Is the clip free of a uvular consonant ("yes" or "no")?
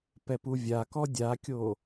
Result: yes